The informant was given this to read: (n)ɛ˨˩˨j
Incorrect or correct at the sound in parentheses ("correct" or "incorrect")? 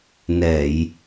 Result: correct